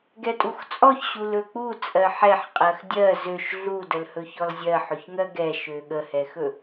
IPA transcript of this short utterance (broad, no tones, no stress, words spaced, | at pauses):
ɡɛtʼuxt͡sʼɔç ɕulɵk͡pu t͡sʼɜħɛħqʼɜx dʲɜ zøʃ ɮudəlhɵçɔl zʲɜħɵçŋɜ ɡɛʃø ɠəhɛxɵ